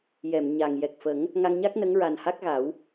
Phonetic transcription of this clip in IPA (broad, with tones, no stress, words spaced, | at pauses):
jɛ˨˩˨mɲa˨˩ŋ jɛ˨˩k̚fə˨˩˦ŋ | ŋa˧ŋɲa˦˥k̚ nə˧˥ŋɹa˨˩n ha˦˥k̚ɣa˨˩˦w